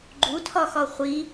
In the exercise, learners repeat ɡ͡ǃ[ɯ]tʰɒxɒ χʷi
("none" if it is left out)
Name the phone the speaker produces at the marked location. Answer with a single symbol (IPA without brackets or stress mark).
u